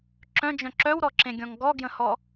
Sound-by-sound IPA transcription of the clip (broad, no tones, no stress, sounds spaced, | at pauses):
ǁ œ̃ d͡ʒ œ̃ ǁ œ w ɾ ɔ ǁ ẽ ɡʲ ɔ̃ ŋ ɡ ɔ ɡ j ə̃ h ɔ